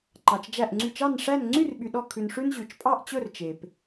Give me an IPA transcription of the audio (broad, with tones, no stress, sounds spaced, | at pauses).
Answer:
ǃ ɑ˩ t͡ʃ d͡ʒ æ˧˩ ʔ ŋ͡ǀ y˧˩ t͡ʃ ɑ˥˨ n ʂ æ˥˨ n ŋ͡ǀ y˥˨ r ɓ y˩ ɗ ɔ˧˩ kʰ ʉ˩ n ʂ ʉ˧ n ʑ ʉ˩ t͡ʃ pʼ ɑ˥˨ ʔ t͡ɕ ɵ˥˨ r t͡ʃ e˩ p